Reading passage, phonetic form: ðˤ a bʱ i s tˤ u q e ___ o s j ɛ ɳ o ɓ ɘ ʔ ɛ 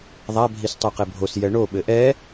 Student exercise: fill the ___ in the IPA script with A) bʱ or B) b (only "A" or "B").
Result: A